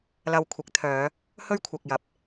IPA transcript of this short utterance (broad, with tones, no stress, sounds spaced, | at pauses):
l ɐ˧ w kʷʰ ɪ˨˥ k̚ t̪ʰ œː˨˧ | h ɵ˥ ɥ kʷʰ ɐ˨ k̚ j ɐ˨˥ p̚